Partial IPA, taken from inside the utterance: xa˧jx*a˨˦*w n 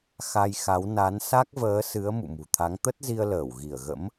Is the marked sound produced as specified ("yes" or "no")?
yes